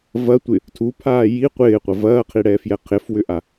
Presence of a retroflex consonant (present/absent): present